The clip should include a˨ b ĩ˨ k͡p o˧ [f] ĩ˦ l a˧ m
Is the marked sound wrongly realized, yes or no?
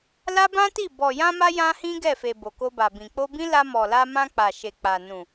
yes